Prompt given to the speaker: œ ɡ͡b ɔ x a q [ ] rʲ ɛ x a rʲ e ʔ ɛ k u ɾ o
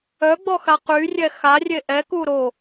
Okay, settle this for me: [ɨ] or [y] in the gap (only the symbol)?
y